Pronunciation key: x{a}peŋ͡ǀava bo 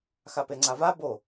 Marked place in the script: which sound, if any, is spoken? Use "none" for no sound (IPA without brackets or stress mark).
a